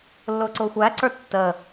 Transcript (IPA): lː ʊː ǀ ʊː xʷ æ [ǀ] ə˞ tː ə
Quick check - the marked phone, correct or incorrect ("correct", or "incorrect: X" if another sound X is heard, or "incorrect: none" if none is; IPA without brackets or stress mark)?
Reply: correct